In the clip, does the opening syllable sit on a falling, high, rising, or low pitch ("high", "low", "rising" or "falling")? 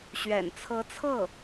low